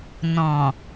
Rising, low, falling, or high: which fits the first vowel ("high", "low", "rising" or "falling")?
low